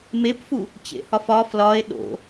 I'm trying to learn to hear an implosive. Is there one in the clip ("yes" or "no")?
yes